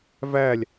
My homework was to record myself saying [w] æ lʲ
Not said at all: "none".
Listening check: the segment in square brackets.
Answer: v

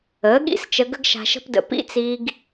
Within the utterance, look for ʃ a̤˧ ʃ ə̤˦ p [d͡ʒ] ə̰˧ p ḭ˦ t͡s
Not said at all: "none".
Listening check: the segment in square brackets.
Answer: d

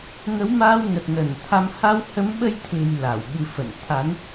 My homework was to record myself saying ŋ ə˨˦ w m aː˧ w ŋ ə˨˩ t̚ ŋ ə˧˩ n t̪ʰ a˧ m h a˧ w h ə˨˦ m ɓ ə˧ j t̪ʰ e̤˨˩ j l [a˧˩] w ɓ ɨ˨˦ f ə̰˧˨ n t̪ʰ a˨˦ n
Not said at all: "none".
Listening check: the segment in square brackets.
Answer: a˧˩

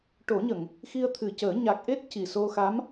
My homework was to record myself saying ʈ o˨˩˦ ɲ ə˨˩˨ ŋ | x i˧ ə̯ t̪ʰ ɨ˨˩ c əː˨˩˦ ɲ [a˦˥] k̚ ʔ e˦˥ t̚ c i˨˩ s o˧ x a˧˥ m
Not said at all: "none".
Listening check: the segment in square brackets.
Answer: a˨˩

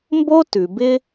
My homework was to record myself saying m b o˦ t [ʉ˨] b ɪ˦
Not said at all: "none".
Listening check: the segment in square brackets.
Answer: ʉ˨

